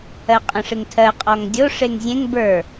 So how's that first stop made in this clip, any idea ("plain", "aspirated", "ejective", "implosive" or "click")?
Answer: ejective